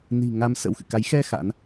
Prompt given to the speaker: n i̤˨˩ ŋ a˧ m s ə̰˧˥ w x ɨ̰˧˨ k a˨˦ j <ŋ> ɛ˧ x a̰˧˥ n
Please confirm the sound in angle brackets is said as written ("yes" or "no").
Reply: no